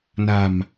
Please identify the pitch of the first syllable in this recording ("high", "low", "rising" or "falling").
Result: low